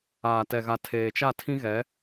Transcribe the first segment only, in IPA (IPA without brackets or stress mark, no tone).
aː